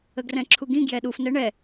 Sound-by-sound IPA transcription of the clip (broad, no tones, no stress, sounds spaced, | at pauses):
ə ɡ r ɛ̃ ǁʰ u ɡ ĩ ɡ j ɛ ɗ u f n ɛ ɳ ɛ